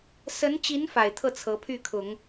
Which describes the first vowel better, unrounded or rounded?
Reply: unrounded